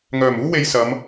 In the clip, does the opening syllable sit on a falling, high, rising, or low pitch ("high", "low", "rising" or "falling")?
low